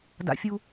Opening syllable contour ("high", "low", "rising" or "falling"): high